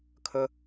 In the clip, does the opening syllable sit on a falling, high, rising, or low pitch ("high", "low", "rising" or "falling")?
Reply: low